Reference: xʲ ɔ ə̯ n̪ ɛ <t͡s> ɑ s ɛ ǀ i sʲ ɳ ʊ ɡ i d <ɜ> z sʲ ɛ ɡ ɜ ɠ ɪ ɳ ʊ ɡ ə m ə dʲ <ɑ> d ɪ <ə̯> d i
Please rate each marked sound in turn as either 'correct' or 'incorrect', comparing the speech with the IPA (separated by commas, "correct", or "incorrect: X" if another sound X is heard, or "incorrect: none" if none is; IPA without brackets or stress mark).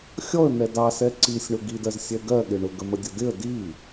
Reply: incorrect: d, correct, incorrect: ʌ, correct